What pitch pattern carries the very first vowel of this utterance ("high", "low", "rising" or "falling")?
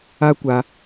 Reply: high